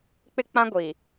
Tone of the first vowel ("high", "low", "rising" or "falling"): high